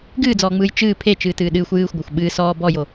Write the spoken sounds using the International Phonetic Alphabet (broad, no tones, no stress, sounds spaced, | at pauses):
ɡ ɨː d͡z ɔː ŋ͡m ɯː j t͡ʃ ɨː pʰ e t͡ʃ ɨː t ɨː ɗ ɨː xʷ j ɨː xʷ ɡʷ a xʷ ɓ ɨː s ɔː b ɔ j o